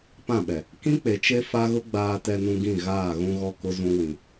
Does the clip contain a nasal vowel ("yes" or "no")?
yes